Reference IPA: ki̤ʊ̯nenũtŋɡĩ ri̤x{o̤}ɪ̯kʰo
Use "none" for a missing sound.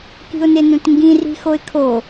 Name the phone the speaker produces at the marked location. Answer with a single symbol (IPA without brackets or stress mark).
o